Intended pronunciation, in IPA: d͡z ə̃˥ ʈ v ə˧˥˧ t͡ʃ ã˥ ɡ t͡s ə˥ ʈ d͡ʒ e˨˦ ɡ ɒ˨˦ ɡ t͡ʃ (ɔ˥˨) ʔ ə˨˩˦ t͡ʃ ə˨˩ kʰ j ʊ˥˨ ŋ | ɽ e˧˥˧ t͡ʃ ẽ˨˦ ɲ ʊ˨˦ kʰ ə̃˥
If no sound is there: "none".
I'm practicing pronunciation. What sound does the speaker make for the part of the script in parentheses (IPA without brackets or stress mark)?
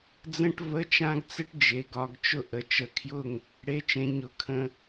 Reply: ʊ˥˨